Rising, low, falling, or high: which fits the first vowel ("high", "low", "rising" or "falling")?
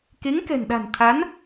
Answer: rising